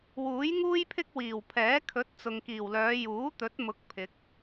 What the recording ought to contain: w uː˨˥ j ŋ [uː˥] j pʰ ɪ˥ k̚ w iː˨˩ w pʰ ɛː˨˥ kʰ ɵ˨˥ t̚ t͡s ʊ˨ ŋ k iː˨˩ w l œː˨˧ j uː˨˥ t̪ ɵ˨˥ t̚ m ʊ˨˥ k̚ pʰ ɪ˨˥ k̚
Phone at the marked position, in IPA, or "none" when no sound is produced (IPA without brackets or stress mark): uː˥